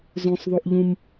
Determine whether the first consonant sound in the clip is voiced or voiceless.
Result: voiced